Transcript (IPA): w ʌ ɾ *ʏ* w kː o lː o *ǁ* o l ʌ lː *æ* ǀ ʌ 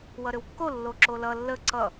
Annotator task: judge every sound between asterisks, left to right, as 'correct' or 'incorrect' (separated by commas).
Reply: correct, correct, incorrect